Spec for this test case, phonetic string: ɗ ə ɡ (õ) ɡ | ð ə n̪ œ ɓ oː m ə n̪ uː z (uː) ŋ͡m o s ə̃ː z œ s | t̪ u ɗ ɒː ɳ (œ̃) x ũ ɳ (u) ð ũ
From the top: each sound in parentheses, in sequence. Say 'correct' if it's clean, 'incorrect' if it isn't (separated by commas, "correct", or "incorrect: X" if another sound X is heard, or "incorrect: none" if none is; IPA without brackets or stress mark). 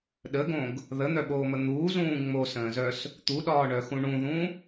correct, incorrect: ũː, incorrect: œ, incorrect: ũ